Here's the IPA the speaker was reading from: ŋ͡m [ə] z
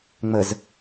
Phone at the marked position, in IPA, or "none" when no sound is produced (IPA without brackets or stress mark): ə